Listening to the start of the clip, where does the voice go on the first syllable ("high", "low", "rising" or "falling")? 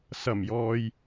low